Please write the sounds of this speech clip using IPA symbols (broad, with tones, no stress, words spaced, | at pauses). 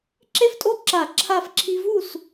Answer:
ǁe˥ftʼo˥ǁa˧˩˧ ǁʰa˥˨f ǁʰi˥ vu˥˨s